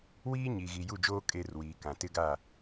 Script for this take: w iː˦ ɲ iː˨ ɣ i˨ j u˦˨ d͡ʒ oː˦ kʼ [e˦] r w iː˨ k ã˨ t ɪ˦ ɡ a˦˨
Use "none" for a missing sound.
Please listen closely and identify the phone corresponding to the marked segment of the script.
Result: e˦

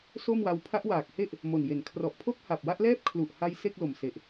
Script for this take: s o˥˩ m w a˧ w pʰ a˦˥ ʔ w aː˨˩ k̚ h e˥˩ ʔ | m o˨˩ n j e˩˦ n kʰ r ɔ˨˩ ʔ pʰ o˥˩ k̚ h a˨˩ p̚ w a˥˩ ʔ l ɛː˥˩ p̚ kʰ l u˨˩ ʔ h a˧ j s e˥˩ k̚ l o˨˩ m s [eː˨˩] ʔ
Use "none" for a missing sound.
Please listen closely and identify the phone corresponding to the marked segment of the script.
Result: e˨˩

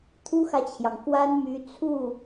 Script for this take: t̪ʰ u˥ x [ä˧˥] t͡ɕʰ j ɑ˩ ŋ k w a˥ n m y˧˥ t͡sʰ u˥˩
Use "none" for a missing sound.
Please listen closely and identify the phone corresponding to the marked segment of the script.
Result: ä˨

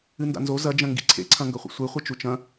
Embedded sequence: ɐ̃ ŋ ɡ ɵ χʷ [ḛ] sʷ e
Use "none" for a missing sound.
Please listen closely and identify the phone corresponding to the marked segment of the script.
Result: ḭ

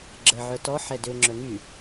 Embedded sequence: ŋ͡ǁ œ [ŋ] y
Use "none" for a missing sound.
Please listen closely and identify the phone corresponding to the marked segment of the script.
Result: ŋ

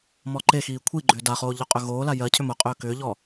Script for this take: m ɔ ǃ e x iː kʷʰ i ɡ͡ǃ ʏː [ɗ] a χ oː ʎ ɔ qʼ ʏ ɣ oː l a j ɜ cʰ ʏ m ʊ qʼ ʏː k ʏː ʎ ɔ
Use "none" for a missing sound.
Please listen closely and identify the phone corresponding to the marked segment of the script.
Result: d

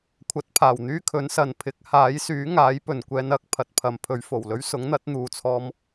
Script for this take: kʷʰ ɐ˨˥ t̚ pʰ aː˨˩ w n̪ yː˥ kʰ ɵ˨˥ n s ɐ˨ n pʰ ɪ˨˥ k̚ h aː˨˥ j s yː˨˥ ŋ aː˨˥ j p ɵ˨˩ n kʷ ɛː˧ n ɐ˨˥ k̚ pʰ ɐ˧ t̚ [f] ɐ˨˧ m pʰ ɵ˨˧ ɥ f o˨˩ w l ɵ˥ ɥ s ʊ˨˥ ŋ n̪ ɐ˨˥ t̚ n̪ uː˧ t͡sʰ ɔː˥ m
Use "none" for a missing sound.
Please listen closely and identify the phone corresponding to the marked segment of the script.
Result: pʰ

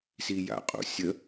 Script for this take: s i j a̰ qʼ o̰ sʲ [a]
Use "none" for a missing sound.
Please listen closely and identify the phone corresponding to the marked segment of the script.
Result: ə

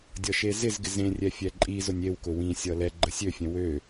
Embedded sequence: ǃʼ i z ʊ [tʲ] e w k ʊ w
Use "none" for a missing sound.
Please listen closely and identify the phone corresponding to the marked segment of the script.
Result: nʲ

